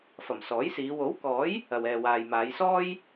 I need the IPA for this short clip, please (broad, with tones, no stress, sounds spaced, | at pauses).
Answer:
f ɐ˨˩ m s ɔː˨˥ j s iː˨˧ w o˨˥ w k ɔː˨˥ j | ɐ˨ w ɛː˨ w aː˨ j m aː˨˧ j s ɔː˥ j